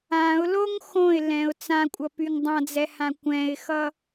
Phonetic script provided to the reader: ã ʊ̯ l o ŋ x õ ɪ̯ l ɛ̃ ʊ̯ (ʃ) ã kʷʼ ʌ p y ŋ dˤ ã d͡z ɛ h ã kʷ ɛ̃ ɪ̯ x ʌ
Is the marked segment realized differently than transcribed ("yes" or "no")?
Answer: yes